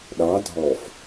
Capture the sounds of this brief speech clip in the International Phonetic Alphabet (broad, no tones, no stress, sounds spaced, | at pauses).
ɗ ɑ dʱ ɔ f